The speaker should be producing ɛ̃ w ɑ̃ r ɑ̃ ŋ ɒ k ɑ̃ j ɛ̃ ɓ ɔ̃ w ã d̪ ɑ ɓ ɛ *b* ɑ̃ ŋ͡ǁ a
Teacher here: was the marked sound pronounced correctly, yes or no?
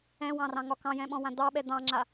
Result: no